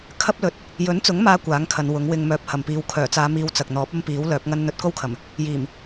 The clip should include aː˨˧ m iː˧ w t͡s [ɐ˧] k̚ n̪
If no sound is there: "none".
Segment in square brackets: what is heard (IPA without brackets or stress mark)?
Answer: ɐ˨